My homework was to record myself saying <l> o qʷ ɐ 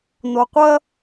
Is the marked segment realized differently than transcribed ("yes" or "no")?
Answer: yes